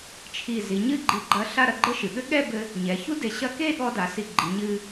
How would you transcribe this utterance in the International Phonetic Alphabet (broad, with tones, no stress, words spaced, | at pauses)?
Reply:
t͡ʃʰi˧˩ zi˩˧ɲɨ˥˧ɡ͡ǃi˧˩ɡ͡ǃɐ˧ ɬa˥˧ ɾɐ˧ɡ͡ǃɘ˥˧ʃɨ˩˧ɠɘ˥ ɠɛ˥˧bɘ˧ | ɲɛ˩˧ çu˥de˧˩ɕɐ˥˧ ke˥˧ɠɔ˧da˩˧ si˧˩ɡ͡ǃi˩˧ɲɨ˧